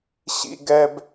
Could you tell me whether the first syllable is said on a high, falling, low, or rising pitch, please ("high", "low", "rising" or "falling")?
low